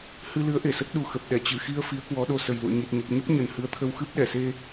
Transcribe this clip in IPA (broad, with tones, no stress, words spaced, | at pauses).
hɨ˧ lɨ˨˦ə̯ʔe˧˩sə˦˥t̚ɗu˨˩ xə˨˩p̚ɗɛ˧˩ t͡ɕɨ˧˩xi˧ə̯ fi˨˦ə̯kwɔ˨˦ɗo˧ sə˨˩jlṵ˧˨ə̯ɲi˨˩t̚ ɲə˨˩p̚ɲə˦˥p̚ ɲə˨˩nhɨ˨˦ə̯t̪ʰə˧w xɨ˦˥p̚ɗɛ˧˩se˧